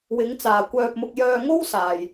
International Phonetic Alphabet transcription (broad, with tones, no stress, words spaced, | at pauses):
wɪ˨˧ŋ t͡saː˨kʷœː˧p̚mʊ˧k̚ jœː˧ŋo˥wsaː˨j